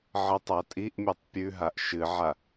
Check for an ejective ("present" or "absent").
present